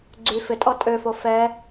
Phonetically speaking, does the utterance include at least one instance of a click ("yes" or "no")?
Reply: yes